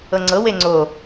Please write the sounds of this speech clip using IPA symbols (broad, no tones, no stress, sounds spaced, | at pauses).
ɤ ŋ͡ǀ ɤ w e ŋ͡ǀ o